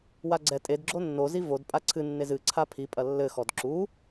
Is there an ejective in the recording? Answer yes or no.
yes